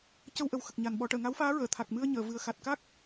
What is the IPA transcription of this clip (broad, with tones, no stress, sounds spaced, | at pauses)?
c ə˧ w ʔ ə˨˩ w x ə˨˩ k̚ ɲ a˨˩ n ɓ ɔ˨˩˦ ʈ əː˨˩˨ ŋ a˧˥ w f aː˧˥ ɹ əː˨˩˨ t̪ʰ a˨˩ k̚ m ɨ˧ ə̯ ɲ əː˨˩˨ v ɨ˨˩ ə̯ x a˨˩ t̚ k a˦˥ k̚